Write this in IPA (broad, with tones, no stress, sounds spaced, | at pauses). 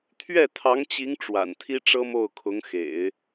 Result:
t̪ʰ ɥ ɛ˥˩ t̪ʰ ɑ˧˥ ŋ t͡ɕ i˧˥ ŋ ʈ͡ʂ w a̰˨˩ n t̪ʰ i˥ ʈ͡ʂ ɤ˥ m o˥˩ ʊ̯ kʰ ʊ˧˥ ŋ x ḛ˨˩˦ ɪ̯